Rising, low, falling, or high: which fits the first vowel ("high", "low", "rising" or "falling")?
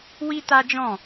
high